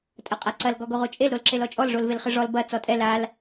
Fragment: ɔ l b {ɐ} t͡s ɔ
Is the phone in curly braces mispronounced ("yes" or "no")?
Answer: no